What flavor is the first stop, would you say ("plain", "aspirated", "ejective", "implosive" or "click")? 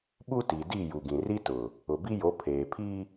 implosive